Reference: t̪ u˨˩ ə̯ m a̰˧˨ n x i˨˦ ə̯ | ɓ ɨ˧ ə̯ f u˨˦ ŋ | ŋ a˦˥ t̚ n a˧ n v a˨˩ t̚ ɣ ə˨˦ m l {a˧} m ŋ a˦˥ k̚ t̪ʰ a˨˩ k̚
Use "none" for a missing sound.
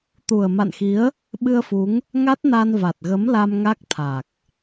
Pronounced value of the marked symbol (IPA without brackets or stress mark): a˧